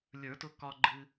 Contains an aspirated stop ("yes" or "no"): no